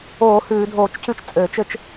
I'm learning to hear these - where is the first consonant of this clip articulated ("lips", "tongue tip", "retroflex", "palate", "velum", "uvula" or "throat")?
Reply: throat